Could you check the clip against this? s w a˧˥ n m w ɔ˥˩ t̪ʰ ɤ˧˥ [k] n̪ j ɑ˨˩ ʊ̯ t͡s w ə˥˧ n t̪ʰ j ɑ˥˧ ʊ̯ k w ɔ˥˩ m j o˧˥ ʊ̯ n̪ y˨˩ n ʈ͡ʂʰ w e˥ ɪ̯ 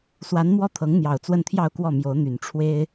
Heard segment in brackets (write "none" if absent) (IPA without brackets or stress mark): ŋ